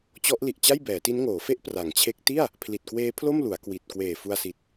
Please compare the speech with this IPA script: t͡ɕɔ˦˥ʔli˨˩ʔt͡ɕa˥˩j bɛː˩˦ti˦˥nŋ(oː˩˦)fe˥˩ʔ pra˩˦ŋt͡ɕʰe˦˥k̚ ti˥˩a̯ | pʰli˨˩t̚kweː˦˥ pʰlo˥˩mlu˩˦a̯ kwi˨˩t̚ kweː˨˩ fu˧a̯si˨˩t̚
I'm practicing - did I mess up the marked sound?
no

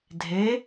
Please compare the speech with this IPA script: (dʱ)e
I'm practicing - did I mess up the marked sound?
no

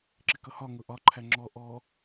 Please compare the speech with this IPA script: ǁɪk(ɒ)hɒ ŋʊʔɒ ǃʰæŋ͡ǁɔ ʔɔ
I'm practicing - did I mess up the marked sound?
yes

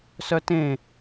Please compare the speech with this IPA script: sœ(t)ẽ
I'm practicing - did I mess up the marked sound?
no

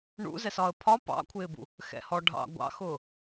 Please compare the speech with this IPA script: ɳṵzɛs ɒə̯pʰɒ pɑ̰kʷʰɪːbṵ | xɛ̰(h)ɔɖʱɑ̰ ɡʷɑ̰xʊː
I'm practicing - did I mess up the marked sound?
no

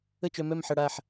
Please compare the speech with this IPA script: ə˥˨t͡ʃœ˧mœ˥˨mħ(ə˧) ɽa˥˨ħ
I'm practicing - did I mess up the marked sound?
yes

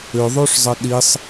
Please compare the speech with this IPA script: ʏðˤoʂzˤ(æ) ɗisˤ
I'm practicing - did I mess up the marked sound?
yes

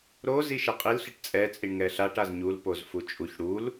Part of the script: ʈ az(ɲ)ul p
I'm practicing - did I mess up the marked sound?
no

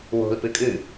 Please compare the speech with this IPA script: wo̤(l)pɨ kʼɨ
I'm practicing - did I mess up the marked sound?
no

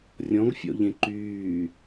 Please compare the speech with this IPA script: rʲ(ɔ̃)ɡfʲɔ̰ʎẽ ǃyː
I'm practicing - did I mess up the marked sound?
no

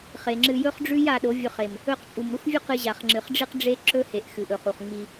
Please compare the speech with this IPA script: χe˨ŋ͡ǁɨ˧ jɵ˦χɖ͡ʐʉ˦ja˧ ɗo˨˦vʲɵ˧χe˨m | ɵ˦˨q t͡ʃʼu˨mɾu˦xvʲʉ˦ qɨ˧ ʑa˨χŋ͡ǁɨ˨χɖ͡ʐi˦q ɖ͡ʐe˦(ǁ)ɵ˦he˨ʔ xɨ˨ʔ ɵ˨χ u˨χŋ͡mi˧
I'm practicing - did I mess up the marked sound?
no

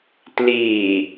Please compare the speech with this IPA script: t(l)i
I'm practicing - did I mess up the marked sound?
no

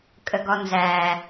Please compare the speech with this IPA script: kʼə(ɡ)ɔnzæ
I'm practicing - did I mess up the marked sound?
no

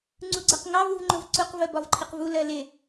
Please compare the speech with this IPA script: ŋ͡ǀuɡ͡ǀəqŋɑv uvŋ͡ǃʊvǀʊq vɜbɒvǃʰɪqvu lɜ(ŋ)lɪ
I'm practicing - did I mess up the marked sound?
yes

